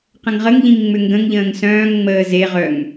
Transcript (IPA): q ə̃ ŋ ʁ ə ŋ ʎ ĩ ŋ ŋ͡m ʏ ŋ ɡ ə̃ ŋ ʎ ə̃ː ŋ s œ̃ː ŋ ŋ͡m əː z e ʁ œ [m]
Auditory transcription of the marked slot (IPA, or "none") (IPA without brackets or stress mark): ŋ